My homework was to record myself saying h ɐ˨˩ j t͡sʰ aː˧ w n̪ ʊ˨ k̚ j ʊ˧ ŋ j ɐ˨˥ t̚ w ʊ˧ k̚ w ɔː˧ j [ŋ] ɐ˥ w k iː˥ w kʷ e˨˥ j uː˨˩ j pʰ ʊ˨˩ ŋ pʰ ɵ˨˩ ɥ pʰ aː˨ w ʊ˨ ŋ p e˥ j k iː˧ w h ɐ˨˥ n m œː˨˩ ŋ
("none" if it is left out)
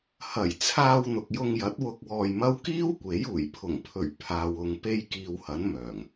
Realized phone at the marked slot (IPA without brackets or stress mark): m